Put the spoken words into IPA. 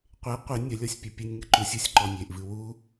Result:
qʷ e qʷ e nʲ ɐ lʲ ɔ sʲ pʲ ɛ pʲ ɨ nʲ ŋ ɨ ǃ u sʲ u sʲ ǃ ɔ nʲ e ʔ v ɨ w u

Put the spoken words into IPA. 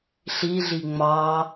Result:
ɬ i ɮ i ŋ͡m ɑ

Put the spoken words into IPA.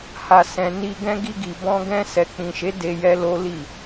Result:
h a˨ s ɛ̃˨ n i˧ ɡ ɛ̃˦ ɡ i˧ ɡ i˨ b ɔ̃˧ ɡ ɛ̃˧ s ɛ˨ k͡p ĩ˨ ʃ e˨˦ d e˧ j ɛ˦ l o˦ l i˦˨

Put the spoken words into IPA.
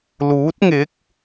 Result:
l uː˨˥ t̚ ŋ ɪ˨˥ k̚

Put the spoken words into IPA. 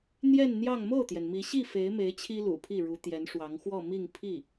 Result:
n̪ j ɛ˥˧ n n̪ j ɑ˥˧ ŋ m o˥˩ ʊ̯ t̪ j ɛ˩ n m i˧˥ ɕ i˥˩ f e˧˥ ɪ̯ m e˧˥ ɪ̯ t͡ɕʰ i˥ l ṵ˨˩ pʰ i˥˩ ɻ u˧˥ t̪ j ɛ˧˥ n ʂ w ɑ˧˥ ŋ x w ɔ˥˧ m i˥˧ ŋ pʰ i˥˩

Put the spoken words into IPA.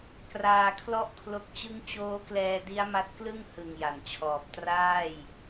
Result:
k r aː˧ kʰ l ɔ˥˩ ʔ kʰ l o˦˥ k̚ t͡ɕ ɯ˦˥ ŋ t͡ɕ oː˦˥ k l ɛː˧ d i˦˥ a̯ m a˦˥ t̚ k l ɯ˥˩ ŋ h ɯ˨˩ ŋ j a˩˦ n t͡ɕʰ ɔː˨˩ p̚ t r aː˥˩ j

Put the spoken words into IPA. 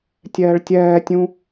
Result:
tʲ ɛː ɭ tʲ ɛː tʲ ũ

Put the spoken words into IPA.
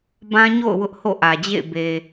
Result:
b ã˦ ɲ o̰˦˨ ʊ̯ w ʊ˦ ʔ h o̰˦˨ ʔ ä˨ d͡ʑ ḛ˦˨ ɪ̯ b e˨

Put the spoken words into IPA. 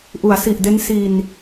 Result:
ʔ u˩˦ a̯ s i˨˩ ʔ d e˦˥ n s i˧ n

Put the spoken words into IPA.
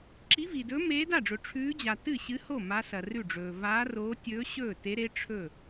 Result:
ǁ i˧˥ v i˨ d ɵː˧˥ m eː˧˥ d a˥˩ ɖ͡ʐ ɵ˨ ʈ͡ʂʰ ʉː˧˥ d͡ʑ a˨ t ɨ˥˩ ɕ ɨ˧˥ h o˥˩ m a˧˥ s ɐ˨ r ʉ˥˩ ɖ͡ʐ ɵː˨ v aː˧˥ r oː˧˥ tʲ ɵː˧˥ ɕ ɵː˥˩ t e˧˥ ɾ e˧˥ ʈ͡ʂʰ ɵ˥˩

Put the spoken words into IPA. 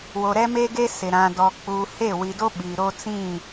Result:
w o˨ ɾ ɛ˦ m e˦ ɡ e˦ s ɪ˨ ɾ ã˨ d ɔ˨ k͡p uː˨ h e˦˨ w i˨ d o˦ ɓ iː˨ ɾ o˦ t͡s ĩ˦˨

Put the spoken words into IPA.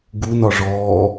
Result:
ɡ u n ɒ ʐ ɔː

